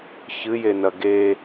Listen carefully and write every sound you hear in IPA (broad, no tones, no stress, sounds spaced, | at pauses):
ç ɨ j e n ɐ ɡ e